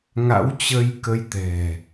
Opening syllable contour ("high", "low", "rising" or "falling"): rising